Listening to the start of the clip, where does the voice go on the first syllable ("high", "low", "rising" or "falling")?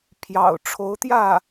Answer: low